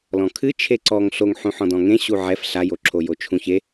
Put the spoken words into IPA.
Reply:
l ɔ̃ kʰ ɨ t͡ʃʰ e ǀ ɔ ŋ ɬ o ŋ ħ ũ ħ ɔ̃ d ɔ̃ ŋ ẽ ɕ u ʕ ɛ f ɬ a j o ǁʰ o j o t͡ʃʰ ũ ç e

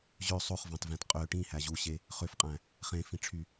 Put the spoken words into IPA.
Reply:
ʑ ø sˤ o χ v ɑ̃ t v æ̃ t qʼ ø ʈ ĩ h æ ʑ u ɕ e | χ ø f qʼ æ̃ | χ ẽ f ĩ ʈ͡ʂʰ y

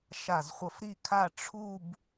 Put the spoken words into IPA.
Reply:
ʃ a˧˩ z χʷ ʌ˧ f ɾ i˥˧ kʰ a˥˧ ʈ͡ʂʰ u˥˧ b

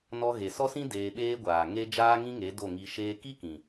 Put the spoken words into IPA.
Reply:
n ɔ˧ ɣ e˨ s ɔ˦ s ĩ˦ d eː˧ ɓ eː˦ ɡʷ aː˨ ŋ e˦ d͡ʒ aː˦ ŋ ĩ˦ ŋ e˨˦ d o˦˨ ŋ i˧ ʃ eː˦ k i˦ k ĩ˨

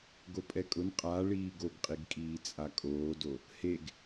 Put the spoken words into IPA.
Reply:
ɡ o pʼ ɛ kʼ ʊ n qʼ a ɭ iː ɡ o ɡ qʼ i ɡ kʼ iː t͡sʼ a kʼ oː d o | h e ɡ

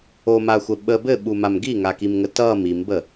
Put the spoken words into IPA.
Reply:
o m a xʷ ə ɓ ə b ɘ ɓ u m a m ɡ i ŋ a k i m ŋ ə t ʌ m i m b ə

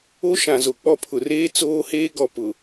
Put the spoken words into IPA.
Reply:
o˦ ʃ ã˨ z o˨ k͡p ɔ˦˨ pʰ ʊ˨ r eː˦ t͡s oː˦ h eː˦ ɡ ɔ˨ p ʊ˨

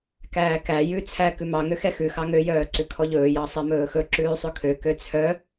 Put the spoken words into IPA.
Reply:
k æː k æ j ʉ t͡sʰ æ k ʉ m ɑ ŋ ø x ɛ x ʉ x ɑ ŋ ø j œː ǀ ʉ kʰ ɔ ʎ ɵː j ɑ sˤ ɛ m ɵː x ɵ ǁ ʉː sˤ ɵ kʰ ø k ø t͡sʰ œ

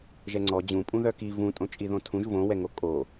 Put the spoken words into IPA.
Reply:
ʒ ɛ ŋ͡ǀ ɔ d͡ʑ ũ pʼ ũ ð œ k i v ũ tʼ õ t͡ʃʼ i ð õ tʰ ũ ʒ v õ w ɛ ŋ o kʼ o

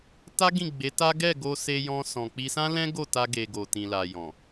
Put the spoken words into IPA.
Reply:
t a˦ ɡ ĩ˦˨ ɡ͡b e˨˦ t a˦ ɡ ɛ˦˨ ɡ o˧ s e˧ j ɔ̃˧ s ɔ̃˨ k͡p i˧ s ã˦ l ɛ̃˦ ɡ o˦˨ t a˧ ɡ e˨ ɡ o˨ t ĩ˨ l a˨ j ɔ̃˨

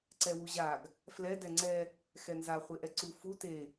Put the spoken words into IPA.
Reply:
ǀ ɛ w u ʑ a ɡ | f l ɛ d ɛ ŋ͡ǀ ɛ | x ɛ n z a χʷ e ʔ ɛ ǀ u f u t e

